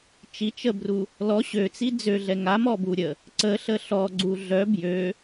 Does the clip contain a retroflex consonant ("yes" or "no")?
no